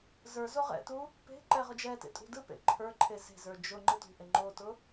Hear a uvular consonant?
yes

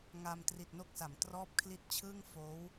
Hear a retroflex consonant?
no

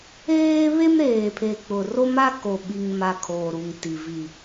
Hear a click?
no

